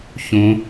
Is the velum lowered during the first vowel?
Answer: yes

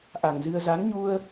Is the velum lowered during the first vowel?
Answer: no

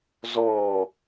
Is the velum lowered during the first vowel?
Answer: no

